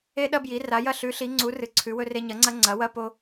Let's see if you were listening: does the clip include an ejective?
no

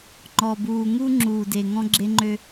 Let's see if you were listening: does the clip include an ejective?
no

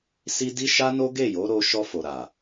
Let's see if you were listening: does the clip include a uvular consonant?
no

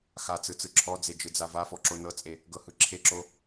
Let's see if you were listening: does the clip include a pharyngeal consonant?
no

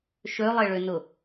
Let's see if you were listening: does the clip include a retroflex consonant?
yes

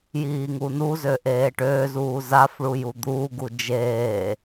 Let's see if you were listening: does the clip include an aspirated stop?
no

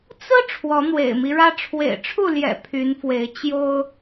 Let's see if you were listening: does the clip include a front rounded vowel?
yes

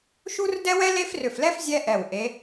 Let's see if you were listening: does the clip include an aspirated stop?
no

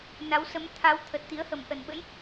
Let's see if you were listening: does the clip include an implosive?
yes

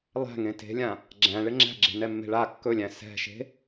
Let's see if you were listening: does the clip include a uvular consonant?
no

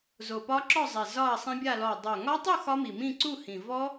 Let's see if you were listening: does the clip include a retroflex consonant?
no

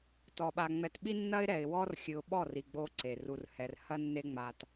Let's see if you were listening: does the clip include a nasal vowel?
no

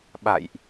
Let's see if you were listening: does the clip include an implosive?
yes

